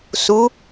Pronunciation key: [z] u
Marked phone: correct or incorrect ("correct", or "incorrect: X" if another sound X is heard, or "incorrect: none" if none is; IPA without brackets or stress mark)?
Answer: incorrect: s